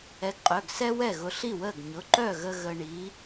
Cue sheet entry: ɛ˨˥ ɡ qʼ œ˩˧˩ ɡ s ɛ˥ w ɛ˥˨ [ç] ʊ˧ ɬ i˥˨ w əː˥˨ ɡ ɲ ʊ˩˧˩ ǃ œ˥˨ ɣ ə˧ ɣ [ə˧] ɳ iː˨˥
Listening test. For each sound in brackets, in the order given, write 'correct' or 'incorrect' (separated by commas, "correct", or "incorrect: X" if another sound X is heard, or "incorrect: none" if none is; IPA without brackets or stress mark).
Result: incorrect: ɣ, correct